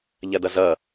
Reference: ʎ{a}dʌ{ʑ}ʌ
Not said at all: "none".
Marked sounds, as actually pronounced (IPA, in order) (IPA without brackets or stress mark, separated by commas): ɐ, z